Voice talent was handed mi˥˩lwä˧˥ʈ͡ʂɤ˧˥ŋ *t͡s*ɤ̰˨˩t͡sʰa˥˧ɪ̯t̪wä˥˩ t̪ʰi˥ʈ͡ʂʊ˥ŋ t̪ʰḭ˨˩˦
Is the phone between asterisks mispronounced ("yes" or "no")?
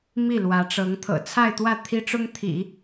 yes